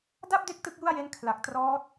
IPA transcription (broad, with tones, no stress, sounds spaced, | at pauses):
d a˥˩ p̚ d e˦˥ k̚ t ɯ˥˩ k̚ j u˥˩ a̯ j e˦˥ n kʰ l a˨˩ k̚ t r ɔː˦˥ t̚